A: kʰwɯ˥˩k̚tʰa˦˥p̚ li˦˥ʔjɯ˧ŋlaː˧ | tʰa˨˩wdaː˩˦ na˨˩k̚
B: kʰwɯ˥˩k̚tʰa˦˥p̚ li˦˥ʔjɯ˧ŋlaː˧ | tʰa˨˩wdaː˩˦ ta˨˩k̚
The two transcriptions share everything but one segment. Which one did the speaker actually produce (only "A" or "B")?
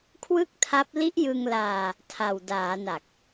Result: A